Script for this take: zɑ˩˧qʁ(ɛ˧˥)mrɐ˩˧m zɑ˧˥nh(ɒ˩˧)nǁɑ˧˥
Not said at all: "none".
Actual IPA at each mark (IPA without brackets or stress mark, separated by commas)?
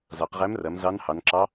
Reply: æ˧˥, ɑ˩˧